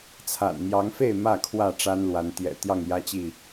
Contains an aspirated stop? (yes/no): yes